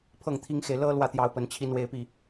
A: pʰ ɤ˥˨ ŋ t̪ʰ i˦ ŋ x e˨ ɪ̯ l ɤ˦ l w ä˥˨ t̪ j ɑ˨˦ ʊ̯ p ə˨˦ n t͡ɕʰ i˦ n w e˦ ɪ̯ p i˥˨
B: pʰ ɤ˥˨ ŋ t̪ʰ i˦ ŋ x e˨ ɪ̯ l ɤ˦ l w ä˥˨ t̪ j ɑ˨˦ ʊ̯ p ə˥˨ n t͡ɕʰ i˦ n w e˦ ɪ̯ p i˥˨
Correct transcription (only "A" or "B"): A